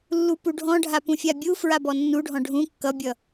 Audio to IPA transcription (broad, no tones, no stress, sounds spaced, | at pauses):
lː u p u ɖʱ ɔ̃ ɖʱ a p ũ fʲ a bʲ u f ɹ a b ɔ nː u ɖʱ ɔ̃ ɖʱ ũ kː ʌ bʲ ʌ